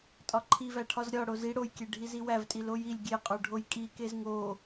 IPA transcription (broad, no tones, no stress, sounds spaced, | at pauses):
tʼ ɒ ǃʰ i v æ ʈʰ ɒ z ɾʲ ɒ ɽ o z i ɽ o j kʲ e ɖʱ i z i w æ v tʼ i l o j i lʲ ɡʲ e qʼ o ɖʱ o j kʼ i k e z ŋ o